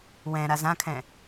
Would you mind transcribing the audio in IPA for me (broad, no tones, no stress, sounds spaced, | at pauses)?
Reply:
w ɛ̃ ɾ a z ã kʰ ɛ̃